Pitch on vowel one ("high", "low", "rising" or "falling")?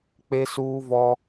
high